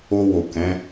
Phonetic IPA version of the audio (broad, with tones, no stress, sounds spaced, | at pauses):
o˧ w o˨ k ɛ̃˨˦